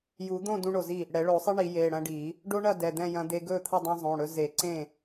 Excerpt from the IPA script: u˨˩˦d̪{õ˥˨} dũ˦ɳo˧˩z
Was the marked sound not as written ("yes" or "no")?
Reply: no